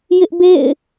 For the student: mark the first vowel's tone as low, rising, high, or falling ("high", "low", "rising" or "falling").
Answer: high